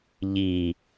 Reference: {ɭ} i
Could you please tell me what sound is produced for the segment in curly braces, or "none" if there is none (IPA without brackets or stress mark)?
ʎ